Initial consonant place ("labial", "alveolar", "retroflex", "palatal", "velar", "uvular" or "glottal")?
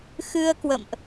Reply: velar